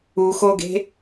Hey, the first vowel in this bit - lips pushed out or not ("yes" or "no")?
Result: yes